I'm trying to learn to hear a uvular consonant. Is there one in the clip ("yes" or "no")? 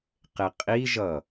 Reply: yes